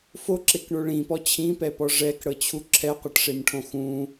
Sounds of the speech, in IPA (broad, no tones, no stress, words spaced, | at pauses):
foǁekɳo ɭĩpɔ t͡ɕʰĩpɛpɔ ʐɛkɽɤt͡ɕʰu ǁʰɛqʷɤʈʂemʈʰõ xũ